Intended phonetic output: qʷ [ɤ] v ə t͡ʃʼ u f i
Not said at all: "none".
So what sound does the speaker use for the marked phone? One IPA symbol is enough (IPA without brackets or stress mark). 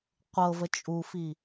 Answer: ɤ